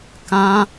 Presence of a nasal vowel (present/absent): present